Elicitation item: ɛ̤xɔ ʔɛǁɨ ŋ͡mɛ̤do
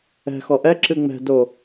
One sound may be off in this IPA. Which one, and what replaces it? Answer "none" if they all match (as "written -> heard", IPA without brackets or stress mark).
none